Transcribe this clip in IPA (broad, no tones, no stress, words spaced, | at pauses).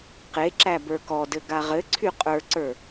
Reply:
qeǁæ bə˞kɔdɘ ɡaʁɘǀʰy qʼə˞ǀə˞